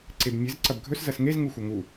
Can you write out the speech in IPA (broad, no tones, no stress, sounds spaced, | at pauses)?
ǀ e b mʲ ɨ z ǀ ɐ b ɡʱ ɵ s z ɐ s ŋ e z ŋ u xʷ ɐ ŋ u